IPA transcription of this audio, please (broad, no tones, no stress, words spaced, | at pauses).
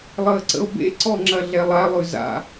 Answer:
lˠəːǀə̰o̯bḛǀɔ ŋ͡ǁɐɮɛlˠalˠʉ za̰